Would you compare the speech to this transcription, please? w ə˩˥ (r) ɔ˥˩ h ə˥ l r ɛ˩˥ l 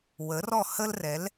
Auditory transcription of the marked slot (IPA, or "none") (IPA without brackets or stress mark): r